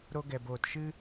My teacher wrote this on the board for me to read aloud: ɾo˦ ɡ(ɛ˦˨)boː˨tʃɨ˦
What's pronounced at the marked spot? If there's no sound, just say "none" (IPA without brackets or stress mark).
ɛ˨